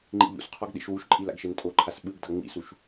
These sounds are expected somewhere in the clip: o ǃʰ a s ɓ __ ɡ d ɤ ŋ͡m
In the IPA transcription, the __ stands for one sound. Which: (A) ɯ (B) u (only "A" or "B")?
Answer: A